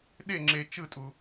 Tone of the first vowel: falling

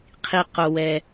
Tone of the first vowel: low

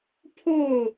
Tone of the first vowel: falling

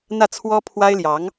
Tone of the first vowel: falling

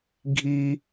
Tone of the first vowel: high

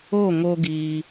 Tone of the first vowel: falling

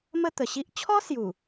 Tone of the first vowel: falling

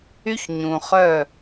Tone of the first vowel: high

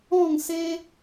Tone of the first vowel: falling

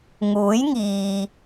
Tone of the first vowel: rising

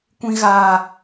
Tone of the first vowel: high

